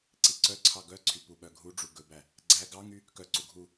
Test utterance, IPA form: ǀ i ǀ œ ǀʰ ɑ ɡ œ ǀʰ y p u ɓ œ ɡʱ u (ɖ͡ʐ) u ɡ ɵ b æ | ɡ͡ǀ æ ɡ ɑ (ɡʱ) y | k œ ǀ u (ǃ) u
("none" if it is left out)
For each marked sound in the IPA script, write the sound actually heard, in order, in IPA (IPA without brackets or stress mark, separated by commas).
ɖ͡ʐ, ŋ, ɡʱ